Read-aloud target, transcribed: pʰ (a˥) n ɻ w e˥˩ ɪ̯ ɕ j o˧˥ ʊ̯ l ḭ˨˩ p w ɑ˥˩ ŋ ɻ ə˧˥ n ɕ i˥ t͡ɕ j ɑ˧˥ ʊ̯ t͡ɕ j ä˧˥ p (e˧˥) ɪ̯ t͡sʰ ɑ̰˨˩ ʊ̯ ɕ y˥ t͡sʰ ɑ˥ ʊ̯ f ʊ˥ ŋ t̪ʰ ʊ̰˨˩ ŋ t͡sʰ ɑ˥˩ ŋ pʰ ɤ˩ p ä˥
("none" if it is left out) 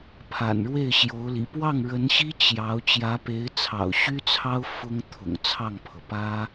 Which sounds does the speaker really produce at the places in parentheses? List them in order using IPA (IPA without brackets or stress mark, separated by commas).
a̰˨˩, e˧˥